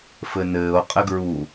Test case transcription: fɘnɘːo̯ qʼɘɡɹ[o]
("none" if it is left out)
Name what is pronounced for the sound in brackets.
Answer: u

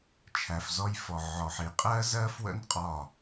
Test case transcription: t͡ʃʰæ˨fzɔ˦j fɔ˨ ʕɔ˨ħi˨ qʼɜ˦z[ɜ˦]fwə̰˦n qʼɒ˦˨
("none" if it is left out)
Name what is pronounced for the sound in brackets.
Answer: ɜ˦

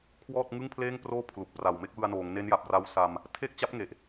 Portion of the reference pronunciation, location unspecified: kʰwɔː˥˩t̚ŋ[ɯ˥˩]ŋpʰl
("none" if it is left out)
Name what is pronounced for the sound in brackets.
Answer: ɯ˥˩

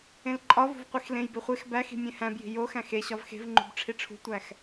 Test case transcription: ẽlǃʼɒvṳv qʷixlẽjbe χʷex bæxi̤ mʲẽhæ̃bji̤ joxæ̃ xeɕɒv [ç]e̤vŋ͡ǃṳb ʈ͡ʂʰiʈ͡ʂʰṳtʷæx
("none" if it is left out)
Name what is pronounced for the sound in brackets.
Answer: x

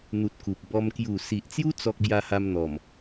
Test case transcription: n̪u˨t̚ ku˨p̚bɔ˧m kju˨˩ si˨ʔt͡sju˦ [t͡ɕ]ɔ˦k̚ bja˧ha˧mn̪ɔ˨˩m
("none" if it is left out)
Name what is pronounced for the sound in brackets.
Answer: t͡s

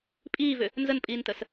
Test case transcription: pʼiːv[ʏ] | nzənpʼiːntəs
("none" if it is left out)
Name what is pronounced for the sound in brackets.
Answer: ʏ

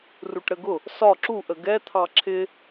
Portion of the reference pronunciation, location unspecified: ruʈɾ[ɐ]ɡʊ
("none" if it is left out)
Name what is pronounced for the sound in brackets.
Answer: ə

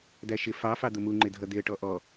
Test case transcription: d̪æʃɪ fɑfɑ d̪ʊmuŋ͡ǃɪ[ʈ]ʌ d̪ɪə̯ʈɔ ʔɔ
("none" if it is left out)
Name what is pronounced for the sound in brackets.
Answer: dʱ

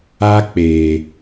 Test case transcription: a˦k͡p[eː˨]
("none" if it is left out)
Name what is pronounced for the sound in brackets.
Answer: eː˨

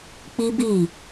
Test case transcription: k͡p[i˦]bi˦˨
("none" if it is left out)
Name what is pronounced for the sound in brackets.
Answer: i˦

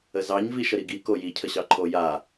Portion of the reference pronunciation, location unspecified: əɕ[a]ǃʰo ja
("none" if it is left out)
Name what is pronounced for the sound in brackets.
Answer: ɑ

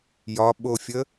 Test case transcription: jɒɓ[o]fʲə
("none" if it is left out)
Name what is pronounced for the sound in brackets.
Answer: o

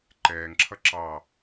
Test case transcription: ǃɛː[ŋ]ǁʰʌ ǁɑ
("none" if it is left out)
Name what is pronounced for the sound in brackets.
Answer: ŋ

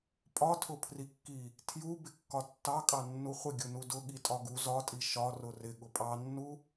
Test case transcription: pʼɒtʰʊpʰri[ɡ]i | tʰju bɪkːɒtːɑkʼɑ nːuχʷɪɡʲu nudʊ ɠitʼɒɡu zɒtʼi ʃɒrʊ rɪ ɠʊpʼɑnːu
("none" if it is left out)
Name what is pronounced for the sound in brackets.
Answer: kː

